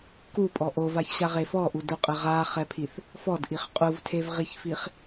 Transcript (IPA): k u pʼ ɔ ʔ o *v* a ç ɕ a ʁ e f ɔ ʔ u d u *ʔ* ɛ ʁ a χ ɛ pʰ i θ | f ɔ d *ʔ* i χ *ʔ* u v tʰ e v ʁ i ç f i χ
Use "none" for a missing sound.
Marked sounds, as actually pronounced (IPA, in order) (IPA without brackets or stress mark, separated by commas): v, qʼ, ʔ, qʼ